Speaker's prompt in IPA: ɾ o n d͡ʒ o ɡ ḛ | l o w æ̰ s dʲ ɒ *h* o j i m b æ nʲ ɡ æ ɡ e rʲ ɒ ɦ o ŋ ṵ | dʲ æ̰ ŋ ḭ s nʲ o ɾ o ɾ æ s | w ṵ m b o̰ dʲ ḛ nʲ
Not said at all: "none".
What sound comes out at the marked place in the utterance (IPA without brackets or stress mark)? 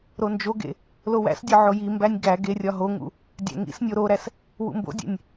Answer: ʕ